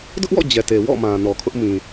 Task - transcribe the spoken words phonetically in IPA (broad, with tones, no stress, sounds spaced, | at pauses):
d ʊ˦ ʔ w ɔ̰˦˨ d͡ʑ ɛ˨ t e˨ w ɔ̰˦˨ m ã˨ n ɔ˨ kʰ ʊ˦ ʔ m ĩ˨